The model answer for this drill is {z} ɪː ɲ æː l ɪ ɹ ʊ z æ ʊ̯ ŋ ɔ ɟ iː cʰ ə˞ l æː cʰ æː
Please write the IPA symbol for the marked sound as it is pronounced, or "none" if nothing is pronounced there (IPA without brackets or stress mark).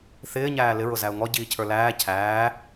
θ